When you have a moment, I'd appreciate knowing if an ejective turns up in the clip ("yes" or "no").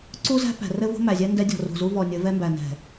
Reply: no